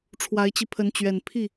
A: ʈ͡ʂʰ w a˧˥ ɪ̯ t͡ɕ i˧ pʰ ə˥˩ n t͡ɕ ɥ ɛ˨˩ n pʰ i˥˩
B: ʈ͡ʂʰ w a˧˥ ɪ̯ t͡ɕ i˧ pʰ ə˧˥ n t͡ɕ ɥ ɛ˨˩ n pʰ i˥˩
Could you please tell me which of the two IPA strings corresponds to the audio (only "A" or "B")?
B